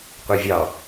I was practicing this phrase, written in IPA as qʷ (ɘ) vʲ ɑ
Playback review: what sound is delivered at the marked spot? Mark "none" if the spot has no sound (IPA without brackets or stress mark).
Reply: e